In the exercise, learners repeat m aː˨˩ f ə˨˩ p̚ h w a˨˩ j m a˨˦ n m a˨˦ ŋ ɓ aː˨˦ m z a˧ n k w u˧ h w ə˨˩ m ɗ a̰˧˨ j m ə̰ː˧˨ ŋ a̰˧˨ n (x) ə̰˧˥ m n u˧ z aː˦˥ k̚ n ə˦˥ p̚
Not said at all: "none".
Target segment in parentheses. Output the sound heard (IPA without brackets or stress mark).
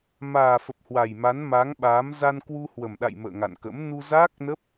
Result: k